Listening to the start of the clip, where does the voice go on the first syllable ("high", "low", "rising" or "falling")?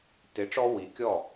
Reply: rising